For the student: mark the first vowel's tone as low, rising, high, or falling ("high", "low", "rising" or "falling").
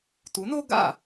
rising